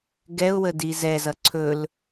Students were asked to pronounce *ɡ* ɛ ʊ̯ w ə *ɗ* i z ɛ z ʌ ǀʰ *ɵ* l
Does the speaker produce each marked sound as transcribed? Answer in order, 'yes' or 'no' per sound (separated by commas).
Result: yes, no, yes